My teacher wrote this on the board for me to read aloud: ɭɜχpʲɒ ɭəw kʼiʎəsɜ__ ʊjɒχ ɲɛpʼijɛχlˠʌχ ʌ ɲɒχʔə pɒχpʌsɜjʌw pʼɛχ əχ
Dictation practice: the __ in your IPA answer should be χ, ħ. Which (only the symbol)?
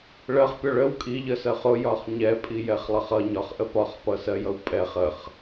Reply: χ